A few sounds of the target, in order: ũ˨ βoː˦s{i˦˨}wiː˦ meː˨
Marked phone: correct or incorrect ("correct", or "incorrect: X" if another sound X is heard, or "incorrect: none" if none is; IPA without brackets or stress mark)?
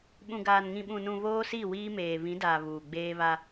correct